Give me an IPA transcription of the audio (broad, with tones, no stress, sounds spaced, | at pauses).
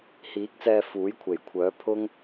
h iː˨˥ k̚ t͡s ɛː˧ f uː˨˥ j kʷʰ e˨˩ j kʷʰ œː˨˥ pʰ ʊ˥ ŋ